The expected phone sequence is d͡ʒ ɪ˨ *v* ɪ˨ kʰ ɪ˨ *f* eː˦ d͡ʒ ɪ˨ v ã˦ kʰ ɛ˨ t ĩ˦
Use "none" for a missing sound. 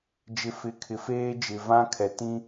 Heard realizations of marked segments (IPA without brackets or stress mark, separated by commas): f, f